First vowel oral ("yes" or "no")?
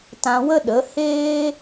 no